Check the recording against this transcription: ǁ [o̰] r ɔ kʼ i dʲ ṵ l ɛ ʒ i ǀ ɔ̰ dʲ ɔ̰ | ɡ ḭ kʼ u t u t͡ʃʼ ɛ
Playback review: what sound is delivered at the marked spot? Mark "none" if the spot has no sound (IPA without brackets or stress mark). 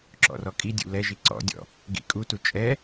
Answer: ɔ̰